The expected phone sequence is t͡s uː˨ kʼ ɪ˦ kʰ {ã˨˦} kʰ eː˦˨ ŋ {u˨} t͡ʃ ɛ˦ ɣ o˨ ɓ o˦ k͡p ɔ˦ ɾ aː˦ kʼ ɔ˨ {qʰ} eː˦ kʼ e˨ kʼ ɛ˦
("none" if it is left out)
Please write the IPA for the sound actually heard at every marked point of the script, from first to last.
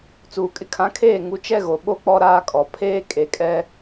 ã˨˦, u˨˦, pʰ

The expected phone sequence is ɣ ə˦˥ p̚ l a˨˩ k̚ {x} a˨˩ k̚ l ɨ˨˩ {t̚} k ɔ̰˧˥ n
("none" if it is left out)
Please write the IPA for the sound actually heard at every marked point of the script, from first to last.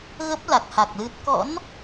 h, t̚

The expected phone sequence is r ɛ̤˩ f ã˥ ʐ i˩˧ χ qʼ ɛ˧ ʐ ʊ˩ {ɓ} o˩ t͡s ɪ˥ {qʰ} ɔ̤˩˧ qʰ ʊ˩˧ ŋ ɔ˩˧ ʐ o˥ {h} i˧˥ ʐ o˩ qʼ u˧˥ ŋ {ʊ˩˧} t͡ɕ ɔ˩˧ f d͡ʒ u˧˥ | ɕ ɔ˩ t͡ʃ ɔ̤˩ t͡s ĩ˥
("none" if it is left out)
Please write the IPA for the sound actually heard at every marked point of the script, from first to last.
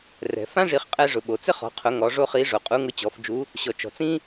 ɓ, χ, χ, ʊ˧˥

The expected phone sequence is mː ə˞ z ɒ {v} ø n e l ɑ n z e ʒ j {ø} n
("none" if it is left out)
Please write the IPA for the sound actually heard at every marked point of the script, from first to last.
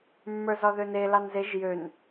ð, ø

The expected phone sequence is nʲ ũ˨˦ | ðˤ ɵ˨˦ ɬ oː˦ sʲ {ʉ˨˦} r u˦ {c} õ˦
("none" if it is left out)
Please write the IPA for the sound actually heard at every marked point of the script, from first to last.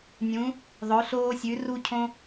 ʉ˨˦, cʰ

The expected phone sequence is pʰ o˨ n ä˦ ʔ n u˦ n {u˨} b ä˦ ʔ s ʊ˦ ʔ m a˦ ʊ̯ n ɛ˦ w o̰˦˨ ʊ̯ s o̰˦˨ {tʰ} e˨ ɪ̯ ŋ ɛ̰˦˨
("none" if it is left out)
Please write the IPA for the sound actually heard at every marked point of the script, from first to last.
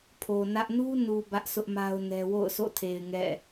u˨, tʰ

